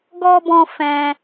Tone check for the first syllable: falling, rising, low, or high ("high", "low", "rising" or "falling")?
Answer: high